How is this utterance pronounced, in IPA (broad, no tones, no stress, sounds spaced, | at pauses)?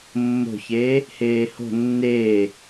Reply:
mː o̤ ç eː | h eː h o̤ nː eː